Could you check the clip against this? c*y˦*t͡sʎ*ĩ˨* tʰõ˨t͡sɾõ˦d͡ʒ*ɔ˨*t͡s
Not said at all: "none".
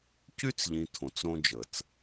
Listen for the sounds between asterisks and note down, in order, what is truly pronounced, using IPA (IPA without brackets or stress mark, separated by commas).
y˦, ĩ˨, ə˨